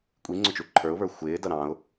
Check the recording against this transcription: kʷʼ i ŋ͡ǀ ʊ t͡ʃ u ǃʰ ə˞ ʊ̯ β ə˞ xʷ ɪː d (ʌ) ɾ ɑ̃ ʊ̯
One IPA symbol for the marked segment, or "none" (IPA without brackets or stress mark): ʌ